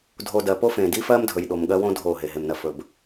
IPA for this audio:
dʱ o˨ d ɜ˨ p o˦ f ẽ˨ d i˦ f ɜ˦ m dʱ ɵ˨ j ɗ o˨ m ɠ ɜ˦ w õ˦ dʱ o˦˨ ɦ e˨ ɦ e˨ m n ɜ˨ f ɵ˨ b

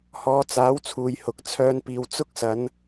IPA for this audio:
h ɔː˨˧ t͡s aː˨˥ w t͡sʰ uː˨ j h ʊ˨ k̚ t͡sʰ œː˧ n p iː˨ w t͡s ʊ˥ k̚ s ɐ˨˧ n

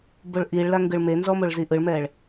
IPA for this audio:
b o ɭ ʔ i ɭ l a ŋ ɡ ɯ ɭ m e n z ɔ m o ɭ z i ʔ ɯ ɭ m ɛ ɭ

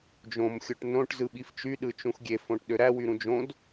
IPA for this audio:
d͡ʒ õ m xʲ o ʈ n õ ʈ z ɯ ɓ i f t͡ʃ y ɗ ɯ t͡ʃ ũ x ɡʲ e f õ ʈ ɗ ø ɾ æ w y ɾ ũ d͡ʒ õ d

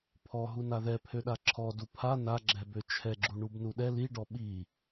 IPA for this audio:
pʰ ɔ ɦ u n a ð ɛ pʰ ø ɗ a ǁʰ ɔ d u pʰ a n a ɡ͡ǁ ɛ b ø t͡ʃʰ ɛ ɡ͡ǁ u ɳ u b n u ɗ ɛ l i ɖ ɔ ɓ i

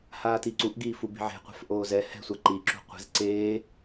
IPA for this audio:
h aː t i ǀ u ʔ ɡ iː f u b i̤ ʕ e̤ qʷ ɛ̤ f ʔ oː z ɛ h ɛ̤ sʷ a ǃ i ǁ ṳ qʷ i̤ z ǀ eː

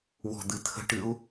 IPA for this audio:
w ɔ̤ d̪ ɨ t̪ʰ ə̤ ʈ ɨ u̯

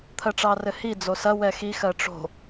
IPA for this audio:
t̪ʰ ɜ ʈ͡ʂ ɑ r ɘ h i d͡z o s ɐ w ɛ x i x ɜ ʈ͡ʂ o̤

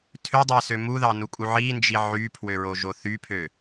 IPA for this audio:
tʰ ø dˤ æ s ø m u ð ɑ n u kʼ u ʕ i n d͡ʒ i ʕ y pʰ w ø ɹ o ʒ o θ y pʰ ø

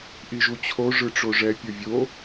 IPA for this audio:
ʔ i ʒ u t͡ɕʰ o ʐ ɯ ʈ͡ʂ o ʐ ɛ pʲ o vʲ o

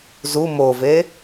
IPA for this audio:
z u m o v e

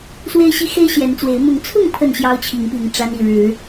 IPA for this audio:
s w e˦ ɪ̯ ɕ i˦ x e˦ ɪ̯ ɕ j ɛ˨˦ n t͡s w e˨˦ ɪ̯ m ʊ˨˦ ŋ t͡sʰ ʊ˥˨ ŋ pʰ ə˥˨ n ɕ j ɑ˦ ʊ̯ t͡ɕʰ i˨˦ ŋ p i˨˦ ŋ ʈ͡ʂ a˦ n i˥˨ ɻ ɻ̩˨˦

